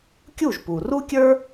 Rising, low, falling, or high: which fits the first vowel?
falling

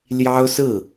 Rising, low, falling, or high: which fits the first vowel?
high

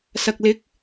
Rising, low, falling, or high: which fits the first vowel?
low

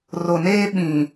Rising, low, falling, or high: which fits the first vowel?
low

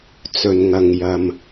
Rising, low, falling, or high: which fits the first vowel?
low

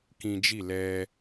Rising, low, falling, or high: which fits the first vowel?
high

